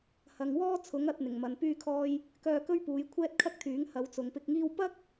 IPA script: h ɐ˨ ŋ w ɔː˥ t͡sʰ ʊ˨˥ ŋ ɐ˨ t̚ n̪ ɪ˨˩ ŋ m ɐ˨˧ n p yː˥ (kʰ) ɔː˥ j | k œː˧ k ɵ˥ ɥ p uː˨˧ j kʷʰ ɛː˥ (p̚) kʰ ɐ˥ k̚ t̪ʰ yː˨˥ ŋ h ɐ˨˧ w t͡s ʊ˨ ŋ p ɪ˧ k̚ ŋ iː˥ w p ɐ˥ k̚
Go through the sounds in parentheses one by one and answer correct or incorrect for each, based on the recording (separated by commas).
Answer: correct, incorrect